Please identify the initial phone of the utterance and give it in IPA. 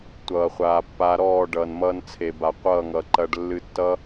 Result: tʷ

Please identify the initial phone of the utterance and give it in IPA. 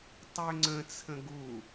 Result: tˤ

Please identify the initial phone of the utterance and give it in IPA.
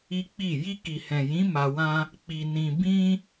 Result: i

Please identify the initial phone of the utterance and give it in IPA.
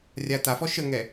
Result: rʲ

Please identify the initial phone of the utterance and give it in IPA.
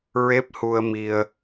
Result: ɹ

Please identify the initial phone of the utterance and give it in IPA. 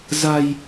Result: z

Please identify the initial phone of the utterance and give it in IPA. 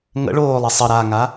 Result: ŋ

